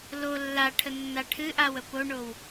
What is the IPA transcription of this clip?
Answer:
l o lː a ʈʰ ə nː a ʈʰ ɨ ʔ a w ə p o ɳ o w

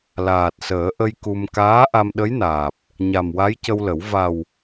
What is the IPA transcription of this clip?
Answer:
l aː˨˩ t̚ s əː˨˩˦ ʔ ə˧ j k u˧ m k aː˧˥ ʔ a˧ m ɗ ə˧˥ j n aː˨˩ p̚ | ɲ a˨˩ m w a˧˥ j c ə˧ w l ə˨˩˦ w v a˨˩ w

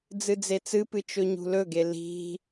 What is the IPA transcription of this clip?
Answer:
d͡z ɨ d͡z e t͡s ɨ p ɨ t͡ʃ ɵ ɲ ṳ l ɵ ɡ e l i̤

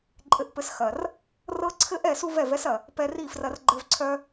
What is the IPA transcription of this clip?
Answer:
ǃʼ ɘ˧ ʔ p ɘ˧ s x ɐ˨ r | r ɤ˦ ǀʰ ɘ˦ ʔ ɛ˦˨ s u˦ v ɛ˦˨ v ɛ˦ s ɐ˨ | p ɛ˧ r i˦˨ f r ɐ˧ r ɡ͡ǃ ɘ˧ v ǀʰ œ˦

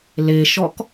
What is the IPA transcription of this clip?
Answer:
l e ʃ ɔ k

